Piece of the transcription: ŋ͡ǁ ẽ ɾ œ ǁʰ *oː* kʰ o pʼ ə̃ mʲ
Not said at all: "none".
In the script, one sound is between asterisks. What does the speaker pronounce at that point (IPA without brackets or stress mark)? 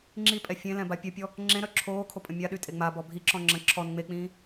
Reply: oː